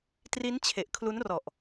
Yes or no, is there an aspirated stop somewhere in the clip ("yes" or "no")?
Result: yes